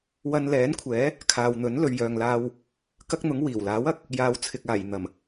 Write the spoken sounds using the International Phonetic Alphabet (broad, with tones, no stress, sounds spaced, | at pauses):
w ɐ˧ n l ɛː˨˥ n kʷʰ ɛː˨˥ | kʰ aː˨ w n̪ ɵ˨˥ n l ɵ˨ ɥ j œː˨ ŋ l aː˧ w | k ɐ˥ k̚ n̪ ʊ˨˥ ŋ w iː˨˩ w l aː˨˥ w ɐ˨˥ k̚ | j aː˨˧ w t͡sʰ ɪ˨ k̚ aː˨˩ j n̪ ɐ˨˩ m